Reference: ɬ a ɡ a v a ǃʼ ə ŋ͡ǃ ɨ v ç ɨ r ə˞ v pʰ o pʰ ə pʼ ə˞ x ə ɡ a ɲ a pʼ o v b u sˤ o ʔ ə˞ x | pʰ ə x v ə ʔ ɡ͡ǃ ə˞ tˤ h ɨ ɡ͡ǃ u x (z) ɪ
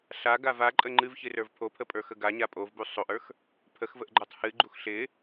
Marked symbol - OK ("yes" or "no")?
no